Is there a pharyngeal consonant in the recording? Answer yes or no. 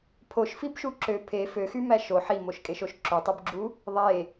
yes